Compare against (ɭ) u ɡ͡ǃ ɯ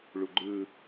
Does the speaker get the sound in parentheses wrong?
no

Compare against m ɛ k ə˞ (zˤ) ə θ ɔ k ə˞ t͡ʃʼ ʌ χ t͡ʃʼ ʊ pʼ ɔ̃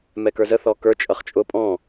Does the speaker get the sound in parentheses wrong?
yes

